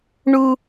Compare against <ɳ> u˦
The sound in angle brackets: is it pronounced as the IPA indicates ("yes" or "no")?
yes